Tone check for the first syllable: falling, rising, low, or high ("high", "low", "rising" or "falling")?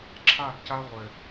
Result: falling